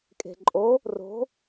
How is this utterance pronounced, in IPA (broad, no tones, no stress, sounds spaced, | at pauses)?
kʼ e̤ ǃʼ o | r o̤